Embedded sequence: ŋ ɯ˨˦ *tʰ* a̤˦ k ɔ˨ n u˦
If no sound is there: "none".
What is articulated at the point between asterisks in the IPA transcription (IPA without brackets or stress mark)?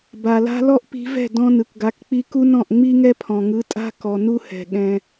tʼ